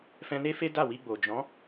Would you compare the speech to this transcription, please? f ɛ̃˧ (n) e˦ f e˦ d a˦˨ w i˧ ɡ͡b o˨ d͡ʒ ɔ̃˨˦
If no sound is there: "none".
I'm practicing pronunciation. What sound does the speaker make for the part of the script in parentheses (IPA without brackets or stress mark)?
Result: n